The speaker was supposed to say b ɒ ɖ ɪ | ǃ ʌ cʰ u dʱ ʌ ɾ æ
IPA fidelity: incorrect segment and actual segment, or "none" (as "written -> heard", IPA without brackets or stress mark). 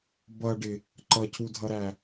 ɒ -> ʌ